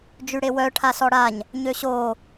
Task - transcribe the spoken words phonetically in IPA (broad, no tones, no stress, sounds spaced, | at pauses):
d͡ʒ y ɽ e w œ ʈʰ a s ɔ ɽ a ɲ | ɲ ø ɕ o